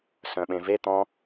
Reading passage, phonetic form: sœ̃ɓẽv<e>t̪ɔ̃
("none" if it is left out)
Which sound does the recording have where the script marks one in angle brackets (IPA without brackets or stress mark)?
e